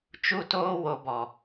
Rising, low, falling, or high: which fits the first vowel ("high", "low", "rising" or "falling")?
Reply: falling